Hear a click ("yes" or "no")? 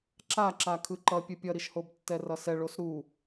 yes